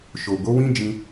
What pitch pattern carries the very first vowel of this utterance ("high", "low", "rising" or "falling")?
low